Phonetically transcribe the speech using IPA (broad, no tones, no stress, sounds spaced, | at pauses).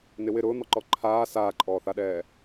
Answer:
n ɪ w ɪ ɾ ʊː n̪ ɔ ǃ ɔ ǃʰ aː s aː ǃʼ ɔː θ a ɗ ɛː